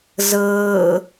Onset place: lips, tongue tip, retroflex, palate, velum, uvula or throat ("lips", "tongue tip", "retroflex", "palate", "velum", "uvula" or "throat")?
tongue tip